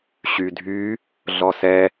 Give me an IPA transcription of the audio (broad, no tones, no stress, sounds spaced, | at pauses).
ɕ y dʱ y | ɮ ɔ s ɛ